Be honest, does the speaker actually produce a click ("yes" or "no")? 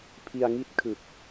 no